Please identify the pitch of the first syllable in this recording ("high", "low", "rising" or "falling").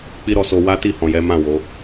high